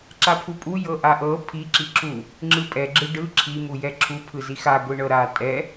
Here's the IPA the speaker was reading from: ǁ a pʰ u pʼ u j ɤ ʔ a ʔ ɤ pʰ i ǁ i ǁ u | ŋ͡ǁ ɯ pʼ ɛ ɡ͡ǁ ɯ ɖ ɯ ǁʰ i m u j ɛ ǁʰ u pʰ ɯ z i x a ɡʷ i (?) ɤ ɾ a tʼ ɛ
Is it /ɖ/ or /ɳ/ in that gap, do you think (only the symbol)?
ɳ